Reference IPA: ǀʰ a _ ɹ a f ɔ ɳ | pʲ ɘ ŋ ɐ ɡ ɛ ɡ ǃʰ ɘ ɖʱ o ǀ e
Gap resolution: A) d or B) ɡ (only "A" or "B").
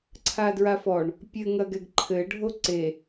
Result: A